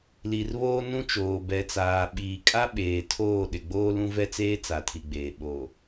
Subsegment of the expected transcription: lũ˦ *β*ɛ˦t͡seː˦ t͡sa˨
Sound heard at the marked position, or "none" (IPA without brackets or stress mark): v